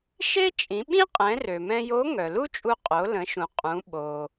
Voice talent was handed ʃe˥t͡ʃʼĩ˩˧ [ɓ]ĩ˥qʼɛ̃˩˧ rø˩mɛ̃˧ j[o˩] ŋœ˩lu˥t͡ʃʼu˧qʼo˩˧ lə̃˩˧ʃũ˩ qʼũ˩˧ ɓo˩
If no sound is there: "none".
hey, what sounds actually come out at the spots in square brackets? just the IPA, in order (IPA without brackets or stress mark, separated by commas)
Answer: ɓ, o˧˥